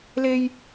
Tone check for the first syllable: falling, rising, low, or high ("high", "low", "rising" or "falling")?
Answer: high